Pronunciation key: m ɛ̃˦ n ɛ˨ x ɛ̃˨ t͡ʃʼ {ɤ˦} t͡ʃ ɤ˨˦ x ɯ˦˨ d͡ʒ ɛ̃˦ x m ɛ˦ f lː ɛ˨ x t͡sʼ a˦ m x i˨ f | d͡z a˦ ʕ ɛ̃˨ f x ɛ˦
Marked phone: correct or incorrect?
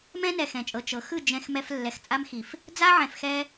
incorrect